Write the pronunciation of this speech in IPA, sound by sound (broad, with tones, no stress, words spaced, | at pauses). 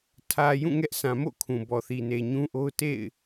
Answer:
tʰä˨ jũ˦˨ŋɛ˦ʔsã˨ mo̰˦˨kʰũ˨bɔ˨ θi˨ne˨ɲũ˦ʔo˦ʊ̯ tḛ˦˨ɪ̯